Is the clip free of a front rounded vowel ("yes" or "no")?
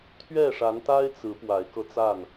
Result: yes